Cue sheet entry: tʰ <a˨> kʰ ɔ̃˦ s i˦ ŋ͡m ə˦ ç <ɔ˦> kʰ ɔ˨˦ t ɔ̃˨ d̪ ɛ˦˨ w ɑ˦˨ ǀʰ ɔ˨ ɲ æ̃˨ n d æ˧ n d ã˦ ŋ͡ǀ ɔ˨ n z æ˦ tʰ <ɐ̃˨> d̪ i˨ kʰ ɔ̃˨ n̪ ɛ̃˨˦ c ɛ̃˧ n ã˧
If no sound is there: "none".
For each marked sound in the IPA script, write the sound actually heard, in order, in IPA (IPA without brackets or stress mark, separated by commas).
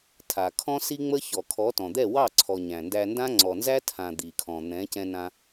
a˨, ɔ˨, ã˨